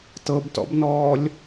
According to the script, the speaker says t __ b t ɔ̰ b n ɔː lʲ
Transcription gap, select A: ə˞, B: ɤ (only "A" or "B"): B